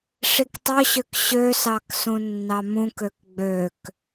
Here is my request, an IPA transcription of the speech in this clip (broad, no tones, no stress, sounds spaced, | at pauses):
ʂ i k tˤ ø ɕ ø k ɕ ø s ɑ k s ũ nː ɑ m ũ k ø k ɡ͡b ø k